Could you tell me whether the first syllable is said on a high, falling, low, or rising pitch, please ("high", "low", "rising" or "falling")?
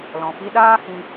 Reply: low